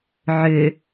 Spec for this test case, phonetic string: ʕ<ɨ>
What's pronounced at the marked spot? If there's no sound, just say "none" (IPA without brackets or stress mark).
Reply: ʏ